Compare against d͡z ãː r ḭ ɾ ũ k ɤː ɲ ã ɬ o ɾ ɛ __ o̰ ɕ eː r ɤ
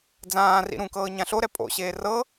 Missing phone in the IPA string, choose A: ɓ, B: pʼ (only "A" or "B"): B